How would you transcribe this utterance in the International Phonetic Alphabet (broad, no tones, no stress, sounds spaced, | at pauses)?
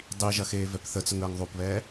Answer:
dˤ i ʒ ɐ x eː v ɛ p θ ə t͡s ə ŋ əː ŋ ðˤ o p β ɛː